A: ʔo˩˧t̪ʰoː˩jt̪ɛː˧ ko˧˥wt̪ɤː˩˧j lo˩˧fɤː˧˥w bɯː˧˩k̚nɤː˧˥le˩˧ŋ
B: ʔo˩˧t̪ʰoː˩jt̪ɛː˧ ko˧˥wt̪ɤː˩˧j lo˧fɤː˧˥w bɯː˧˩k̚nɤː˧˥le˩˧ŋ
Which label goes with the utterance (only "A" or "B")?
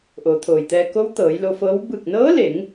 B